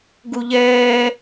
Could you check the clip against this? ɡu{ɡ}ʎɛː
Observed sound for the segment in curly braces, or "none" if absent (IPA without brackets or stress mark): none